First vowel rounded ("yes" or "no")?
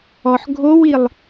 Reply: yes